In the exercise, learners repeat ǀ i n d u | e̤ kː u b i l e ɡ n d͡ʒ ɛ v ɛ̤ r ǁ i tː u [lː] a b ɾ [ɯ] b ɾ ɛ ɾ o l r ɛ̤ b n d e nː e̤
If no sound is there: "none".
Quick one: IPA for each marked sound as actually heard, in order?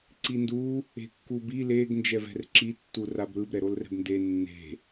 r, ɯ

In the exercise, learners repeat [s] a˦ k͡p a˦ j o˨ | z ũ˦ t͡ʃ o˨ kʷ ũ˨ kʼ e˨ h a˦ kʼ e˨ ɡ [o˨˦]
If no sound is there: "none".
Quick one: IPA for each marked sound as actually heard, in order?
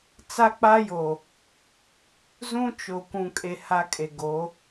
t͡s, o˨˦

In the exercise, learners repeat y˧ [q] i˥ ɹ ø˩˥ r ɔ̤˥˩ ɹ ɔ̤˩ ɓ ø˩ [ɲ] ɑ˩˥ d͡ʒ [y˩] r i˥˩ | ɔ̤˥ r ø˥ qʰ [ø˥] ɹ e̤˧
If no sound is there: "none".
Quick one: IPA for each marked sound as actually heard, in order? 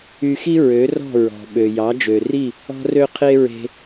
x, j, ø˩, e˥

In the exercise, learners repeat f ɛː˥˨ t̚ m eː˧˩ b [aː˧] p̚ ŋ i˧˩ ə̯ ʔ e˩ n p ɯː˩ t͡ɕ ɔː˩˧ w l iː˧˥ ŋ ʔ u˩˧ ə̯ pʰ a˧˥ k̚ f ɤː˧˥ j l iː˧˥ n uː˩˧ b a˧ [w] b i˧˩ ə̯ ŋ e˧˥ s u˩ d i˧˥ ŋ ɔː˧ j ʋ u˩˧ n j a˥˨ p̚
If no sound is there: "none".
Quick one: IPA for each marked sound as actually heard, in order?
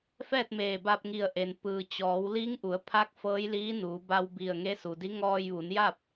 aː˧, w

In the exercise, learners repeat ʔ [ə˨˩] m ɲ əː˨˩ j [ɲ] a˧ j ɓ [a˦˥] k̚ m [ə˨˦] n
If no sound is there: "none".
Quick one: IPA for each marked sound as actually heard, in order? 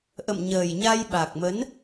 ə̰˧˨, ɲ, a˨˩, ə˨˦

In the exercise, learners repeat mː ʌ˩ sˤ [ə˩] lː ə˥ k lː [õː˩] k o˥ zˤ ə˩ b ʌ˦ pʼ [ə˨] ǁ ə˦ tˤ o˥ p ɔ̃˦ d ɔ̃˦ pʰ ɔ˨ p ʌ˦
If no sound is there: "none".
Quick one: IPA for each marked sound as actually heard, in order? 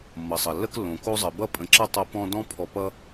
ʌ˩, õ˩, ə̃˨

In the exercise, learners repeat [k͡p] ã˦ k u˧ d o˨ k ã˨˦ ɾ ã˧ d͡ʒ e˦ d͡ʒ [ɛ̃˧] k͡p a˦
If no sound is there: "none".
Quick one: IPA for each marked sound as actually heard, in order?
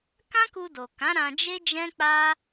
k, ɛ̃˦

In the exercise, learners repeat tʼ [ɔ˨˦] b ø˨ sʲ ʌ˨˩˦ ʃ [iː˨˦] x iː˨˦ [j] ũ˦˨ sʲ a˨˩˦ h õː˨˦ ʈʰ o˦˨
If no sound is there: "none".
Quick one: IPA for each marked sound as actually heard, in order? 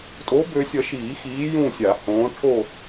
o˨˦, iː˨˩˦, j

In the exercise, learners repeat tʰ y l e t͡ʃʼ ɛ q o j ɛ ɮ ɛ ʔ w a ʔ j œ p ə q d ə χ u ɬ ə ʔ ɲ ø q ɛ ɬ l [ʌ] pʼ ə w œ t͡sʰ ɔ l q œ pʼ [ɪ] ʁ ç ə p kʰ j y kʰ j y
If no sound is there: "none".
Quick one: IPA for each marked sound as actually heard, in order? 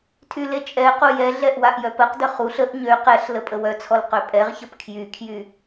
ə, ɛ

